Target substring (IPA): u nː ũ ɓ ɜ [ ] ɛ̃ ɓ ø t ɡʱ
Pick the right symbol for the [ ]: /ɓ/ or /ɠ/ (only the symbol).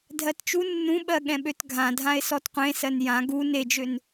ɠ